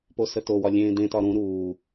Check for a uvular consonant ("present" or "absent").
absent